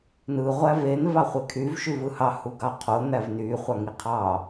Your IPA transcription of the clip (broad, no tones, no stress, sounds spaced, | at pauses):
n ɯ ʁʷ æ v e n v ɑ χʷ e kʰ y v ʃ y v ɯ h ɑ h u ɡ ɑ qʰ o n̪ æ v n y χʷ ɑ ŋ i qʰ ɑ